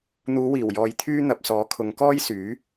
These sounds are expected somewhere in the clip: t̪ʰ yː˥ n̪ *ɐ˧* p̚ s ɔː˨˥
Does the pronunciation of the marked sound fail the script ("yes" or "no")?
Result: yes